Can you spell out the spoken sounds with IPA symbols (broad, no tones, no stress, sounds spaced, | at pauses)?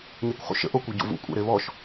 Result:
ɲ e kʷ χ ṵ ʃ ə̰ ʔ o kʷ e ɟ o̰ v ṵ kʷʼ ɛ̰ ɾ e β ɔ ʃ